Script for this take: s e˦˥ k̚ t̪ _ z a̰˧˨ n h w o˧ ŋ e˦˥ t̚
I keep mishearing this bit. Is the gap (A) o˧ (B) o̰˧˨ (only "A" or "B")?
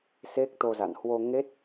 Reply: A